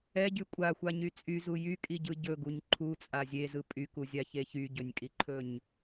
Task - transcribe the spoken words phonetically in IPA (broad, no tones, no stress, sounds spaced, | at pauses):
ɛ ɟ y kʷʼ a xʷ a ɲ y t͡sʼ y z u j y kʼ i ɟ ɯ ɟ ɵ ɡ u ɲ ǃʰ u t͡sʼ a zʲ e z ɯ pʼ y k u zʲ a ç e ç y ɟ ɵ nʲ kʼ i ǃʰ ɵ ɲ